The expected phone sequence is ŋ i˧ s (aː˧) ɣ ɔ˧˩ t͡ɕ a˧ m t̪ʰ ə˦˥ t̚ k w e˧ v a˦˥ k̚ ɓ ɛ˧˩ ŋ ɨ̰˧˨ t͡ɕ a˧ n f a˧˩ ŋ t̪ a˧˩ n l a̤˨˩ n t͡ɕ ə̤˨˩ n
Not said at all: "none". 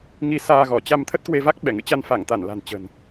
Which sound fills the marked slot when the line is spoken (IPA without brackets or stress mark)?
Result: aː˧